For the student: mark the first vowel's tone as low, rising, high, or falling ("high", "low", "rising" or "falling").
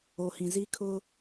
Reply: low